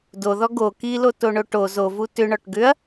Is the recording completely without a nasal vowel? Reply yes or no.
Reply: yes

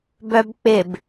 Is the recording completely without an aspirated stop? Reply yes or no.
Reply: yes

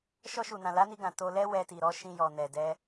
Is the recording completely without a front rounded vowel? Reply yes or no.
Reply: yes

